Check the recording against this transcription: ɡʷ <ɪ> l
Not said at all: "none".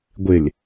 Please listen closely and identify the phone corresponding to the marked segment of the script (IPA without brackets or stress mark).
ɪ